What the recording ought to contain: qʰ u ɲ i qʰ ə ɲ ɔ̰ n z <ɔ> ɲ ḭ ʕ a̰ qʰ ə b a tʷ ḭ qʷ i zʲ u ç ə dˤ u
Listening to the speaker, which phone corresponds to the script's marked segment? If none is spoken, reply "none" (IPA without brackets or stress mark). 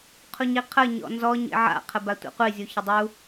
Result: ɔ